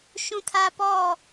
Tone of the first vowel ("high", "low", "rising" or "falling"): high